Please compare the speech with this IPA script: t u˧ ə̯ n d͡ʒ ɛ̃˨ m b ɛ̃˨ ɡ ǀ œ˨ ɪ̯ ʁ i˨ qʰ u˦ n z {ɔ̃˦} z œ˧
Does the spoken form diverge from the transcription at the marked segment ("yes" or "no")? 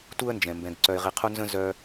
yes